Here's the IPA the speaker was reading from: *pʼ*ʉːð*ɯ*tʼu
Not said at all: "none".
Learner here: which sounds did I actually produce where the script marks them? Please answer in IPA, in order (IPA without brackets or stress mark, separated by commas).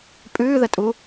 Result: pʼ, ə